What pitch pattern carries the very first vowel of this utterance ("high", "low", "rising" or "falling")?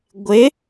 rising